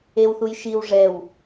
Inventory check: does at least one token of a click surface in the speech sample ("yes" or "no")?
no